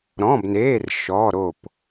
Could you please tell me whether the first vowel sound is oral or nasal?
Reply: nasal